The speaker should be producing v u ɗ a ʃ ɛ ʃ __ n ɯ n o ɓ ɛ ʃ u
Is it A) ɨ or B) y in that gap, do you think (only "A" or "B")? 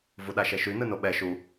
B